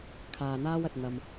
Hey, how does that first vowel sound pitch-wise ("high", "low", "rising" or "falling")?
low